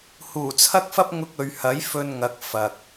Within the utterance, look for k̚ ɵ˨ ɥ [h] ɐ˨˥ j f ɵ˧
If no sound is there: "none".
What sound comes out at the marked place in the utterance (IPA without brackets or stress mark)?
h